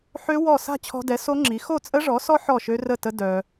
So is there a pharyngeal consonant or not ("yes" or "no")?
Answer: yes